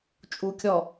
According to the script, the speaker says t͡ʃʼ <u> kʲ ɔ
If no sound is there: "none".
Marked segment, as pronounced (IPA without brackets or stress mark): u